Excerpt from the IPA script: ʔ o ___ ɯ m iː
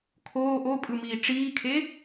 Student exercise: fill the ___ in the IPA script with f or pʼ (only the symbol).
pʼ